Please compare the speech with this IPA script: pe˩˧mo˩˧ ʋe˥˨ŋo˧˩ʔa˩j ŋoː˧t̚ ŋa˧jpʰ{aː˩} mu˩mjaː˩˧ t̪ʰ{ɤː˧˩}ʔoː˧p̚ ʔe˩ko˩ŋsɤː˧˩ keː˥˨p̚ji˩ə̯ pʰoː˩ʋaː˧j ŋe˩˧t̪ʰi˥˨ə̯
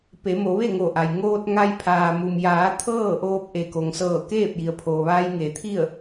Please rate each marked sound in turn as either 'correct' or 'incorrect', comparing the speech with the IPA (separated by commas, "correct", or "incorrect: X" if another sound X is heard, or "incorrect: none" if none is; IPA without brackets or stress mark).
correct, incorrect: ɤː˥˨